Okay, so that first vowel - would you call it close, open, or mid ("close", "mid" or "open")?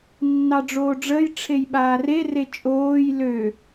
open